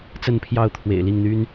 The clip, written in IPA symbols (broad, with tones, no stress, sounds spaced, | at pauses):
t͡s ə˥˨ n pʰ j ɑ˥˨ ʊ̯ t̪ʰ w ḛ˨˩ ɪ̯ l i˥˨ ŋ n̪ y˦ n